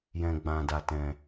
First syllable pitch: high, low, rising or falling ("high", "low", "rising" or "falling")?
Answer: low